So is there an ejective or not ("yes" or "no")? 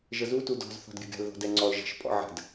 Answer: yes